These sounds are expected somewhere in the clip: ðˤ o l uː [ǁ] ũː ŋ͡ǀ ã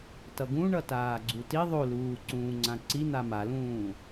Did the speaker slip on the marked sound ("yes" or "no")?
yes